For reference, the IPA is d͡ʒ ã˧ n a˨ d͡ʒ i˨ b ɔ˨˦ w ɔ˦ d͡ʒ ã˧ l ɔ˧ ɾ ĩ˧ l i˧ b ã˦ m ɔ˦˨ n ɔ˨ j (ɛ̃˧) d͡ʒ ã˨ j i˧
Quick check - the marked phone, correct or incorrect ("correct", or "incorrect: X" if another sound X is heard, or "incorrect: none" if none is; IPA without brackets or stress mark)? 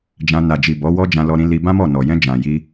correct